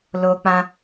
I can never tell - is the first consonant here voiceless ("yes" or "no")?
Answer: no